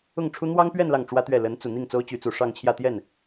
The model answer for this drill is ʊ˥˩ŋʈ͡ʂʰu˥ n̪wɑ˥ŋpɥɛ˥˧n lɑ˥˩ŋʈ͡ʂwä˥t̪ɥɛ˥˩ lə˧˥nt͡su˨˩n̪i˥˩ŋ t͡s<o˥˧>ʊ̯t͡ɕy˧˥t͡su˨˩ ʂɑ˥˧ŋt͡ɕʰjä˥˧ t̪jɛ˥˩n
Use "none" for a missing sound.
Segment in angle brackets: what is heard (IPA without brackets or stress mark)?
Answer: o˥